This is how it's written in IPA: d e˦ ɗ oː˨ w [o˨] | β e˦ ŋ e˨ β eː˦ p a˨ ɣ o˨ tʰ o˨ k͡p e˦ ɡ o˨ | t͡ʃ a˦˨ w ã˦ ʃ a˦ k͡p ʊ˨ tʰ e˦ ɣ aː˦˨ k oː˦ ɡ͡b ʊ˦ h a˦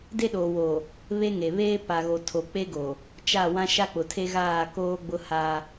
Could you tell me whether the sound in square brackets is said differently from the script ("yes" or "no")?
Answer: no